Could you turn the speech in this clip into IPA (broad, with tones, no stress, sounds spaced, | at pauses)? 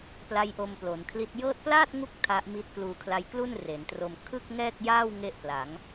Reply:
p l a˦˥ j ʔ o˧ m p l o˩˦ n kʰ l i˦˥ t̚ j ɤː˦˥ t̚ p l aː˥˩ t̚ ŋ u˦˥ k̚ tʰ a˦˥ ʔ m i˦˥ t̚ k l uː˧ kʰ l a˦˥ j k l u˥˩ n r e˩˦ n t r o˧ m kʰ ɯ˥˩ k̚ ŋ ɛː˥˩ k̚ j aː˥˩ w ŋ e˥˩ ʔ p l a˩˦ ŋ